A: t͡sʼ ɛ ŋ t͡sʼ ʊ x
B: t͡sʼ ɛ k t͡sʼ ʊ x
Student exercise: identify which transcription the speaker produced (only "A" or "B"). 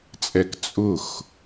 B